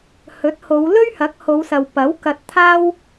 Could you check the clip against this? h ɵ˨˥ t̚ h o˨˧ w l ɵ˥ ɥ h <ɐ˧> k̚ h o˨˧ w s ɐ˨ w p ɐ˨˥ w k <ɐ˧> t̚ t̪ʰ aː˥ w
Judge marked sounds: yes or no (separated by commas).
no, yes